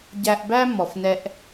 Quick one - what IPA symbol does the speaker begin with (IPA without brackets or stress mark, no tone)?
ɟ